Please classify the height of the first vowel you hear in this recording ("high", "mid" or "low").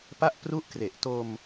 low